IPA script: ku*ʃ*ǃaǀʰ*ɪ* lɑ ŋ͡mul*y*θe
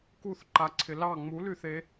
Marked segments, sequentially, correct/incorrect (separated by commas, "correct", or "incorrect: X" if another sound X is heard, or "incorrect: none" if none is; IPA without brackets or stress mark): incorrect: θ, correct, correct